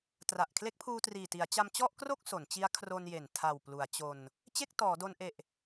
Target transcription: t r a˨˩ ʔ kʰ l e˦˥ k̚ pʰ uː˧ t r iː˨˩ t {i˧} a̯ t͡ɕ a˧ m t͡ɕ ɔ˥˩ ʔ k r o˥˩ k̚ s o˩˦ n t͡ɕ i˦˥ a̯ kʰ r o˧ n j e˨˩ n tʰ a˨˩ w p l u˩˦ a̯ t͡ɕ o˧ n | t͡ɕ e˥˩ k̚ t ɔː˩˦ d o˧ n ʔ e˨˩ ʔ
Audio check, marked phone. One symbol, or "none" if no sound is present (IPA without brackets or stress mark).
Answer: i˩˦